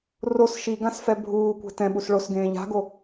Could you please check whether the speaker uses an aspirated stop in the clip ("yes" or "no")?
no